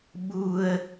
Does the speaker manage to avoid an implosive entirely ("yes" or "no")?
no